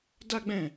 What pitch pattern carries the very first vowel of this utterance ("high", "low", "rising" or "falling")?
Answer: high